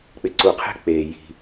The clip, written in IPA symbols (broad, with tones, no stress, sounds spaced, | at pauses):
k͡p ɪ˩˧ ǀ u˩ qʰ e̤˧˥ k͡p eː˩ j i̤˩